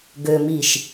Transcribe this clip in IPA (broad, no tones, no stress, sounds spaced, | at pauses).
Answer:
ɡ ø m i ʃ